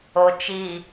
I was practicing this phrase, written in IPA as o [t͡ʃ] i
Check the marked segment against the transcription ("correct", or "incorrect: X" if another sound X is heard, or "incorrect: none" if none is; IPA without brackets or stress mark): correct